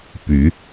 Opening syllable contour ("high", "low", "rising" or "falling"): rising